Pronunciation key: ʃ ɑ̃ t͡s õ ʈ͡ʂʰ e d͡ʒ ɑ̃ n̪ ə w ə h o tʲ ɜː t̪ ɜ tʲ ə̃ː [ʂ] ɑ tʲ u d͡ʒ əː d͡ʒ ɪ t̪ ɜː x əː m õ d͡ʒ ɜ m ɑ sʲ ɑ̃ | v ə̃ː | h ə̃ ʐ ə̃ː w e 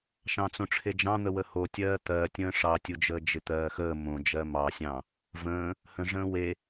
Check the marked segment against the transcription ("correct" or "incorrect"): correct